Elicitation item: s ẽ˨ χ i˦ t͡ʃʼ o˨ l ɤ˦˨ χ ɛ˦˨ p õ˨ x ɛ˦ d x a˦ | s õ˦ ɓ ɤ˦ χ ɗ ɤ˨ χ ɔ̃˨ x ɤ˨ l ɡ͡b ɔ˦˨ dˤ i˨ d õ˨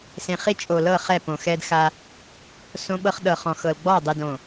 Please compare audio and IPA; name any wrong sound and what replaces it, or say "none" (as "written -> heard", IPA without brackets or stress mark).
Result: none